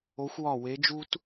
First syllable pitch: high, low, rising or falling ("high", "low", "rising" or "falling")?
rising